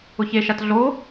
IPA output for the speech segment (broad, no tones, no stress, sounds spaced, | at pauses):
ʊ ç e ʃ a t ɮ o